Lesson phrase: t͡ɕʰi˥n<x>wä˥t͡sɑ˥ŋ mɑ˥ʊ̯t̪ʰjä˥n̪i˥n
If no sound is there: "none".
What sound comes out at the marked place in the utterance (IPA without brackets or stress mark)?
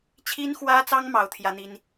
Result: x